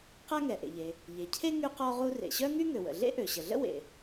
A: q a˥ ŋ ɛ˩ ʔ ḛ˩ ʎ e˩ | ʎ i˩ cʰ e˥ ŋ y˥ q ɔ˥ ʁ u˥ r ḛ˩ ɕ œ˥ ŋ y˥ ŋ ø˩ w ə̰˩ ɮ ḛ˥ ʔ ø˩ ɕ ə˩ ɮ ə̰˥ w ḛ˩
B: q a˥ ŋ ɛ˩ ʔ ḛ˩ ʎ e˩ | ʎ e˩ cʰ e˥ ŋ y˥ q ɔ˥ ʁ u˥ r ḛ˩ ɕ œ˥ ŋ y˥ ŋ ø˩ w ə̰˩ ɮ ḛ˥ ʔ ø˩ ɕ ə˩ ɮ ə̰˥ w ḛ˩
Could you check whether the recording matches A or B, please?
B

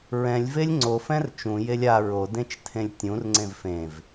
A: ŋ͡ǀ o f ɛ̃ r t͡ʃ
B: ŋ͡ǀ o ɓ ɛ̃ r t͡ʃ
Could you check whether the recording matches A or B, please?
A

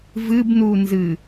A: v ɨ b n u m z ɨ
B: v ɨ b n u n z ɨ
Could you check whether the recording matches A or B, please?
B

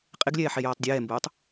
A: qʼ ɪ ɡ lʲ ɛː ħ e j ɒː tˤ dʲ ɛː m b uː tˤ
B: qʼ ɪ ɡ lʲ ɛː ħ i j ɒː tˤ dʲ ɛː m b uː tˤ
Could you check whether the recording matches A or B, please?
A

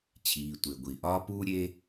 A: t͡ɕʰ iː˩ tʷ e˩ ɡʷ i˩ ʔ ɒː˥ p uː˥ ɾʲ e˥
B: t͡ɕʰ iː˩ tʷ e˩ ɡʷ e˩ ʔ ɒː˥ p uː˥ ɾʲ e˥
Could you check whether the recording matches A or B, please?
A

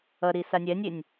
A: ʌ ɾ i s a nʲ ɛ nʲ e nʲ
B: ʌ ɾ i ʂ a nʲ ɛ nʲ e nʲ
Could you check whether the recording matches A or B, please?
A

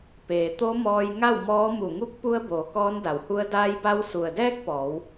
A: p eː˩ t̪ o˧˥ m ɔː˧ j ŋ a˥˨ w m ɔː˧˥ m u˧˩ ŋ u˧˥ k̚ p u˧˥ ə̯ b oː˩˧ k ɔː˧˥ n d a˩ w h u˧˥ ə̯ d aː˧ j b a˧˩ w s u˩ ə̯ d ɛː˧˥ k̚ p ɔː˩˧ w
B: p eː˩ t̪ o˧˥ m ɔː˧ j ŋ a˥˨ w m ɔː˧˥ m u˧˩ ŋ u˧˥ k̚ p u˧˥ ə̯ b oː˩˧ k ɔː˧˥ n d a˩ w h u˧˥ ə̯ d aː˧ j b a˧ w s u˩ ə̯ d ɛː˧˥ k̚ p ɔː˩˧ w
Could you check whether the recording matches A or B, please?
B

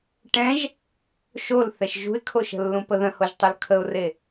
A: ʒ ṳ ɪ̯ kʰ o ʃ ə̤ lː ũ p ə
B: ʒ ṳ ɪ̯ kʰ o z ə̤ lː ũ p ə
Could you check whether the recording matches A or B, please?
A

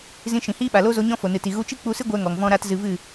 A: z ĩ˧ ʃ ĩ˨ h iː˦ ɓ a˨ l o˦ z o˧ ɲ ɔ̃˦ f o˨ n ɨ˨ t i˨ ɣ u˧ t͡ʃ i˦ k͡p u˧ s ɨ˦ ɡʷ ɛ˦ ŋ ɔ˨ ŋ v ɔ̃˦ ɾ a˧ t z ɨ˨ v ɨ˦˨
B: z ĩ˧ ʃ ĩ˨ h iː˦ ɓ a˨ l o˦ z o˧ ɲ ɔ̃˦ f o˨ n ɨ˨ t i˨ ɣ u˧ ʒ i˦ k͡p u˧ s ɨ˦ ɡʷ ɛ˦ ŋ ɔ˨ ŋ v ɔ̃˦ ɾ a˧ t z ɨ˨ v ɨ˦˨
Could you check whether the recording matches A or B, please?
A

